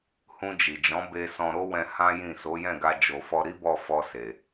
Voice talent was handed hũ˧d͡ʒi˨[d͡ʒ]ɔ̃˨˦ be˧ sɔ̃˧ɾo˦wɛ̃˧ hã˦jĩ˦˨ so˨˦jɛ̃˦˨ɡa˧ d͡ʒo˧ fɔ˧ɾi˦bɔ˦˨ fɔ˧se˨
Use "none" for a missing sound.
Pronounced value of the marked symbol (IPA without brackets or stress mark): d͡ʒ